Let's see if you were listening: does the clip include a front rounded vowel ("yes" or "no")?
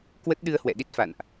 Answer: no